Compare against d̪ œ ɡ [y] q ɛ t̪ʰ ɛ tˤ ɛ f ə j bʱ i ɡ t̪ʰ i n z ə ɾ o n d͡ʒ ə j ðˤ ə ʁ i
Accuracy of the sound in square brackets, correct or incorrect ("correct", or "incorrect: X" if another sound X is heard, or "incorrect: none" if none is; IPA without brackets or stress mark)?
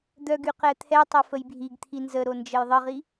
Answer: correct